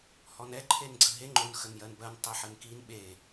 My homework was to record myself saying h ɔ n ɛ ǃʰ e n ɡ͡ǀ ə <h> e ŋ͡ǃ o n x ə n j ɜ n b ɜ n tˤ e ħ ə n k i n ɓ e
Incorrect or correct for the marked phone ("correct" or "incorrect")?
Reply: incorrect